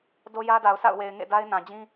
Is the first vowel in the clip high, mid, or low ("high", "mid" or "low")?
mid